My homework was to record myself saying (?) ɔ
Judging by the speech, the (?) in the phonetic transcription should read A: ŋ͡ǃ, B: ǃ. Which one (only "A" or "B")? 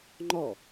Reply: A